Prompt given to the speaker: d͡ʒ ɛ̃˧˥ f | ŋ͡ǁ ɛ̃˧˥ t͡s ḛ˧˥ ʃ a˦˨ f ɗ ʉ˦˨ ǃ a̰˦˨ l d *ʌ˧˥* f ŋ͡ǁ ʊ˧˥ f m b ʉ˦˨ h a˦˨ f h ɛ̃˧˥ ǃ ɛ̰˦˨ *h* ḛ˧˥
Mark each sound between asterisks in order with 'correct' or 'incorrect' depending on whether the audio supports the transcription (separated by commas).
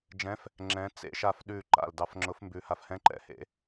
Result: incorrect, correct